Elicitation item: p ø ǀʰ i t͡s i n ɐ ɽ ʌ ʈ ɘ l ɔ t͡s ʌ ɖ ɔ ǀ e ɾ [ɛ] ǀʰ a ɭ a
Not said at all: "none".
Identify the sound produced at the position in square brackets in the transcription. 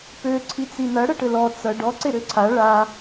ø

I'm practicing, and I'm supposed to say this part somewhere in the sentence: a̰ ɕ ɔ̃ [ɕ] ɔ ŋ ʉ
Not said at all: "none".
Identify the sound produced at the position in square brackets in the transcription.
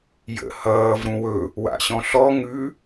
ɬ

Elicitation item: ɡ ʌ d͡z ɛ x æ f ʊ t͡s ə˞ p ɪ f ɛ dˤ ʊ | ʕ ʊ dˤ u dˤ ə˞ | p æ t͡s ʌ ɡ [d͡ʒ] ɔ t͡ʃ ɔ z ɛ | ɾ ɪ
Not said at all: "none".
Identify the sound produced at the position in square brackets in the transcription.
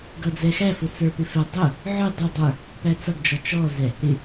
d͡ʒ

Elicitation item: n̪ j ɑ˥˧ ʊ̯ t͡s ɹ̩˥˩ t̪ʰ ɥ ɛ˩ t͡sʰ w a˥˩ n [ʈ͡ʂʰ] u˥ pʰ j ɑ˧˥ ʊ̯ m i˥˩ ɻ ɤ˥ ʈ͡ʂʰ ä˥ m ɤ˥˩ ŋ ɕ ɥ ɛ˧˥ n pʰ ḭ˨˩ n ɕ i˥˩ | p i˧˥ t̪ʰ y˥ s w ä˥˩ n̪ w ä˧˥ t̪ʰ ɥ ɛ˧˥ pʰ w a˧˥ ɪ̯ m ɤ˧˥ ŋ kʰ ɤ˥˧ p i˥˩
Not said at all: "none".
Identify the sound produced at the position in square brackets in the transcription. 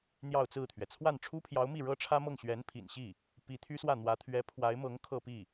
ʈ͡ʂʰ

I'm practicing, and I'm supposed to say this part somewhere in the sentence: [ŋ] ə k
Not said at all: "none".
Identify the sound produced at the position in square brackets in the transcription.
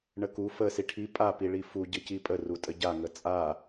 ɳ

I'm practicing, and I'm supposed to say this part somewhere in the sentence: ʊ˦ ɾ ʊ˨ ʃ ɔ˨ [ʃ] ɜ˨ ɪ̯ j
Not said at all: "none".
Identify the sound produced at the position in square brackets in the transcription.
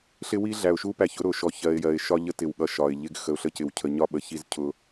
ç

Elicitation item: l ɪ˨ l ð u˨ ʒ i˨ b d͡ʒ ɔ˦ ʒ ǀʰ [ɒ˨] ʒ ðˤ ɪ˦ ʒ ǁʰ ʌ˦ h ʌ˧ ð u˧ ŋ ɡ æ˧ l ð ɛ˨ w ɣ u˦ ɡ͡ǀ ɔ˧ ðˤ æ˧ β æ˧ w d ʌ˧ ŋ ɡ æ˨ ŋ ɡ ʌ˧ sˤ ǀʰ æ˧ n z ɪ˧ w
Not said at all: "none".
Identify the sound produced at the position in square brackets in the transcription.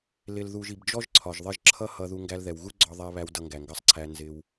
ɒ˨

